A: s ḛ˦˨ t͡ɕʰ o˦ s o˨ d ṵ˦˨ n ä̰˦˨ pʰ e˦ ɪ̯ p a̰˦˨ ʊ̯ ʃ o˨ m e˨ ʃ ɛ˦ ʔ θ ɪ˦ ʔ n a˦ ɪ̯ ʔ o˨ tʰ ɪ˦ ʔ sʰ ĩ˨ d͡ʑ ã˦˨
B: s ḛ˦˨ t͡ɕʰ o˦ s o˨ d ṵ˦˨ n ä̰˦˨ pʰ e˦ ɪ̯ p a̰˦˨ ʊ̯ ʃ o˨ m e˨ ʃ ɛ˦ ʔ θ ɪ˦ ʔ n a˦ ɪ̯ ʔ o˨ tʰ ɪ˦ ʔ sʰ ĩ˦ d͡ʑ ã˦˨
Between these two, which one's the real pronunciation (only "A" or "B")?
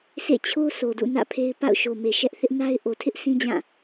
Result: B